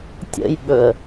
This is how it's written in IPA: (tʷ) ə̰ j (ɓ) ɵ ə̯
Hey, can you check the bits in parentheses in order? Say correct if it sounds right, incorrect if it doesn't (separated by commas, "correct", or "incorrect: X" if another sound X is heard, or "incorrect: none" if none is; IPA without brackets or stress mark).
incorrect: tʲ, correct